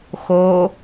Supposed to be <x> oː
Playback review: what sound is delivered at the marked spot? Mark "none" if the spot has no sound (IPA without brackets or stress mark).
x